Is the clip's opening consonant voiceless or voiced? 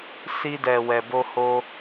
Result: voiceless